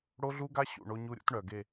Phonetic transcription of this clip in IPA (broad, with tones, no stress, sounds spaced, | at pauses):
ɽ o˦ ɮ u˦ ɡ a˦ ɕ ṵ˦˨ ɳ o˦ ɲ u˦ ɾʲ ṵ˦ t ɳ œ˨ ɡ e˦˨